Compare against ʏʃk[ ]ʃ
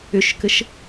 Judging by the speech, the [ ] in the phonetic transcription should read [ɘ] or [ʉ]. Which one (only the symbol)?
ɘ